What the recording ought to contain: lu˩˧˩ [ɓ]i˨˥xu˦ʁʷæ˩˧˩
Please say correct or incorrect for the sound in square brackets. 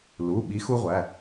correct